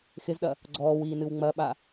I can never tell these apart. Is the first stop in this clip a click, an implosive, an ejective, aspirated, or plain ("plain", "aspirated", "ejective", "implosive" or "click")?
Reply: implosive